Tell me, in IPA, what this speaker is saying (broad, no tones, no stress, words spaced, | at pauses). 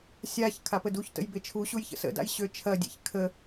sʲaç kʰapəduçtə̰j bet͡ʃʰuɕuj çə̰sə̰da̰j ɕøt͡ʃʰɐdʲḛç kʰə